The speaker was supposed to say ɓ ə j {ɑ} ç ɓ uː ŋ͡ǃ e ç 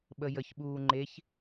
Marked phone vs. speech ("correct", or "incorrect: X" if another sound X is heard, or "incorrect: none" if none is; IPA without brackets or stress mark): incorrect: ə